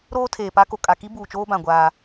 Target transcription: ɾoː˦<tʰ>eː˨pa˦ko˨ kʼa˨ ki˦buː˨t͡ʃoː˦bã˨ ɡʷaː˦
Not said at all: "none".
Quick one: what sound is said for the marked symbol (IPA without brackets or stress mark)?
tʰ